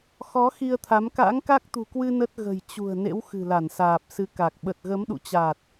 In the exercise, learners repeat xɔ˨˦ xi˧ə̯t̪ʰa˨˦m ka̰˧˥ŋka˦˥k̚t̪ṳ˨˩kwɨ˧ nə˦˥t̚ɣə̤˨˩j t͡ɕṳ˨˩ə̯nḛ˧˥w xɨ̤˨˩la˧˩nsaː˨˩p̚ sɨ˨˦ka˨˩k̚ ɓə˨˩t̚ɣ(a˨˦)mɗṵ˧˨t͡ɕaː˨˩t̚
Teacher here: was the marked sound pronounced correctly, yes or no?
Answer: no